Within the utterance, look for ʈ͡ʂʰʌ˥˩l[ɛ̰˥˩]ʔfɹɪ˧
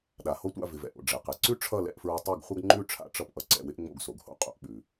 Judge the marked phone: correct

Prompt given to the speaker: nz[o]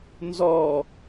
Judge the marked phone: incorrect: ɔ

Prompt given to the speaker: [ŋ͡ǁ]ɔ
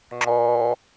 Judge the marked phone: correct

